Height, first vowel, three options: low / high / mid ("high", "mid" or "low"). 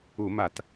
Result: high